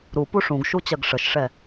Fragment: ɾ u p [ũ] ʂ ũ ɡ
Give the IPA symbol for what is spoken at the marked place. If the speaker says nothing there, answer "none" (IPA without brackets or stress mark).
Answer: u